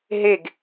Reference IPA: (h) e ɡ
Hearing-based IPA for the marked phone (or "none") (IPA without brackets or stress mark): ɦ